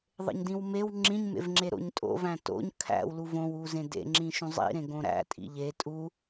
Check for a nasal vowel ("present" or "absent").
present